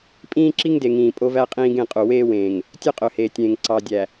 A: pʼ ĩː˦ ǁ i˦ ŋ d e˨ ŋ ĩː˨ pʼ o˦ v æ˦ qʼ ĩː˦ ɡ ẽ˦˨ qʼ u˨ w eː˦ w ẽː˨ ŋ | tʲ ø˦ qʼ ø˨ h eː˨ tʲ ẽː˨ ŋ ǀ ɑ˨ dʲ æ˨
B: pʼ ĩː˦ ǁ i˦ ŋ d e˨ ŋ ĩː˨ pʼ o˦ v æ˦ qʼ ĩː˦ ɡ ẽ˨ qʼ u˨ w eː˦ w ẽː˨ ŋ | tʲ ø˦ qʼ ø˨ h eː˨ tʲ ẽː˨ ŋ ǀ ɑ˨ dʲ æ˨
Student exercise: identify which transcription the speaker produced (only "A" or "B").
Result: A